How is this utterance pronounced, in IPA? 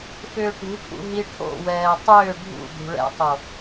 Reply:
f ʏː ʈ ṳ ʈʰ ṵ ɦ i ʈʰ o̰ w ɛː tˤ ʏː ɖʱ ṵ d̪ ṳ ɭ ɛ̰ tˤ o

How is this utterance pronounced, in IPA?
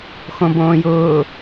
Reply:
x õ b õː j ʊː

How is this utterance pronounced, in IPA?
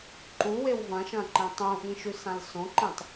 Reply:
ǃ u w e w v ɐ̃ ʃ ɐ̃ ǃ ẽ tˤ ũ ʔ ĩ ʃ ʉ s ã l s õ ǃ ĩ tˤ

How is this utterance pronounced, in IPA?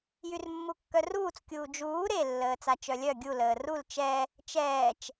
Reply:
j y r mː u kː œ r uː t͡s kʲ uː d͡ʒ uː ɾ e lː əː t͡s a t͡ʃ œ lʲ œ ɡʲ u l əː r u l t͡ʃ ɛ | t͡ʃ ɛː t͡ʃ

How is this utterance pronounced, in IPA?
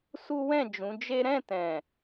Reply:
s u˦ w ɛ̃˦˨ d͡ʒ ũ˨˦ d͡ʒ e˦ ɾ ɛ̃˦˨ t ɛ̃˨

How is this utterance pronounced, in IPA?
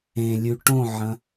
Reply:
ẽ lʲ ʉ ʈ õ ʕ ɐ̃

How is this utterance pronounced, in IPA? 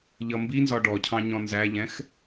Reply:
ʎ ʌ m b i n z ɒ ɖ ɔ cʰ ɑ̃ ɲ ɔ̃ n z æ ʎ ɛ̃ x

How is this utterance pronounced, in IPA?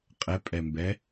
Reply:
qʼ ɛ pʼ ɛ m b ɛ

